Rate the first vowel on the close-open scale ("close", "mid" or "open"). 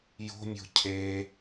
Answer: mid